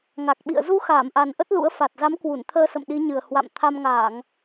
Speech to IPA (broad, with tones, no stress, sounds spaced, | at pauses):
ŋ a˨˩ k̚ ɓ ḭ˧˨ ə̯ z u˨˦ x aː˧˩ m ʔ a˨˩ n ʔ ə˦˥ t̚ l ṵ˧˥ ə̯ f a˨˩ t̚ z a˨˦ m k w u˧˩ n t̪ʰ əː˧ s ə̰˧˨ m ɗ i˨˦ ɲ ɨ˨˩ ə̯ h w a̰˧˨ m t̪ʰ a˧ m ŋ aː˧˩˨ ŋ